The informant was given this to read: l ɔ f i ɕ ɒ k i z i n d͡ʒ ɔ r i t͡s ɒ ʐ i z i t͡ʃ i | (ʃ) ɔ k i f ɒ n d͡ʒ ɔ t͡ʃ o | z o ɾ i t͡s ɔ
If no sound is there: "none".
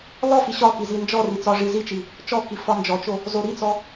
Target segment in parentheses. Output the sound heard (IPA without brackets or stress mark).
t͡ʃ